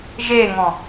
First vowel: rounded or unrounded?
unrounded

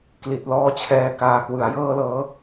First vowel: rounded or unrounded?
unrounded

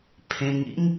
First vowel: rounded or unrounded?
unrounded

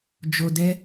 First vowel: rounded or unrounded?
rounded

